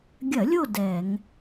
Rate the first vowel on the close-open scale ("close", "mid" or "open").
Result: open